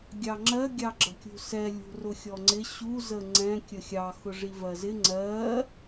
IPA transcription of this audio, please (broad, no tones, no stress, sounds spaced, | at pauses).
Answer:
ɡʲ ɑ ŋ͡ǁ ɜ ɡʲ ɑ ɡ͡ǁ ʌ kʲ ṳ s ɛ lʲ ṳ r ʊ xʲ ɔ ŋ͡ǀ ɪ ɕ u z ə ŋ͡ǀ ɛ̃ kʲ ə xʲ ɑ x ʊ ʐ i v ɜ z ɪ ŋ͡ǀ ɜ